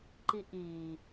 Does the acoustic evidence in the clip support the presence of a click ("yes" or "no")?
yes